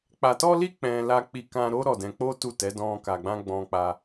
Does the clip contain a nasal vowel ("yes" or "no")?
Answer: yes